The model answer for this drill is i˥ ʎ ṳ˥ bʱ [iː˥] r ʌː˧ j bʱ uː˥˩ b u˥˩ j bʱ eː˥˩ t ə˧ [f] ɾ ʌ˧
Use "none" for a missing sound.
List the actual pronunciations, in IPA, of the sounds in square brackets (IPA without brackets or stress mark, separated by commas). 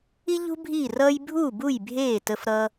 iː˥˩, f